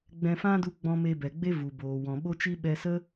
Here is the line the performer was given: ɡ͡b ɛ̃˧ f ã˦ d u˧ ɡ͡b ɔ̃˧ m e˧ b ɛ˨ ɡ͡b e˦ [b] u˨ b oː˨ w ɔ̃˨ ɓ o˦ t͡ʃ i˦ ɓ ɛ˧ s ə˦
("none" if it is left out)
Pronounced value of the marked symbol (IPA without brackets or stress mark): v